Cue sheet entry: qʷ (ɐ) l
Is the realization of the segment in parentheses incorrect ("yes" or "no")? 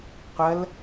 no